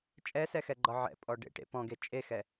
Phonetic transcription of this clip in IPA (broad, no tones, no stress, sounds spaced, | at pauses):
t͡ʃʼ ɛ s ɛ x ɛ ɡ͡ǃ ɒ ʕ ɛ̰ pʼ ɔ ɖ ḛ ʈ ḛ p ɔ̃ ɡ e t͡ʃʼ e x ɛ